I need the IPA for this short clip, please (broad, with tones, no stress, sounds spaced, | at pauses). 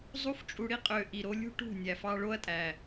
zˤ u˦ f t͡ʃʼ u˧ ɽ i˦ qʼ ø˨ ʔ i˨ ɾ o˧ lʲ ṳ˦ ʈ ṳ˦˨ nʲ æ˨ f ɑ˧ ɭ o˦ ɐ̯ tʼ æ˨